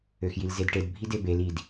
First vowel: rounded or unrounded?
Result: rounded